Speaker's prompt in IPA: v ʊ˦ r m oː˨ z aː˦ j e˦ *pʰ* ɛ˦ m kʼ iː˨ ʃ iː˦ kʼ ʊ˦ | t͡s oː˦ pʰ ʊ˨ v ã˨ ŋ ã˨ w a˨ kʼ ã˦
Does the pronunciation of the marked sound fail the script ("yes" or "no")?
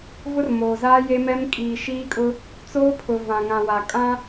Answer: yes